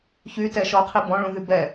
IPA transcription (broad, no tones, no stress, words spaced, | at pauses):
çytɛ ʃɔqʰi bɔ̃ɭũðy bɛ